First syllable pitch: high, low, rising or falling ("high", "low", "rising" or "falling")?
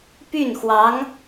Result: falling